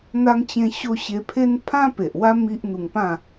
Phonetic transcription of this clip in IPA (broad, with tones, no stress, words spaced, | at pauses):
n̪a˧ŋt͡ɕẽ˧ɕo˧ ɕe˧pʰe˦n pʰã˦pe˨ʔwa˦ mi˦ʔn̪u˧ŋ pã˥˧